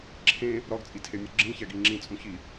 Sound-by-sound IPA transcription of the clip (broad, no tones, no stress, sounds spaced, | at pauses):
ǁʰ ẽ | ɾ ɒ ɡ t͡sʼ i tʰ e mʲ o ɡ͡ǁ ĩ ç æ ɡ i ŋ͡ǁ ĩ t͡sʼ ũ ç i